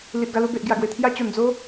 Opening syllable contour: low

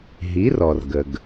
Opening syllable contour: rising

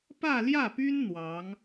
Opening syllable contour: falling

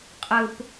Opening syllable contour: low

